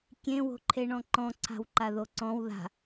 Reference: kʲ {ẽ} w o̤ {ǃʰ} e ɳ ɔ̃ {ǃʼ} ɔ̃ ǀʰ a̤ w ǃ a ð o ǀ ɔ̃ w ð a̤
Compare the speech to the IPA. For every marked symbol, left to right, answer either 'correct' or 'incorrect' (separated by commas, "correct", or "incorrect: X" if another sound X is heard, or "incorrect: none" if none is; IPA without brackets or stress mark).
correct, correct, incorrect: ǃ